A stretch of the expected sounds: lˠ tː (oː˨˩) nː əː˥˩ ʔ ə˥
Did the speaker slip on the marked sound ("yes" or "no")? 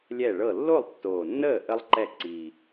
no